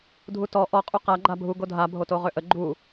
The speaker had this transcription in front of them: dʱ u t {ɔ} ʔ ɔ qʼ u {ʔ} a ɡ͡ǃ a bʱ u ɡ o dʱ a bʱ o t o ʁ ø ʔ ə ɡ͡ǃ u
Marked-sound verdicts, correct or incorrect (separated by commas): correct, incorrect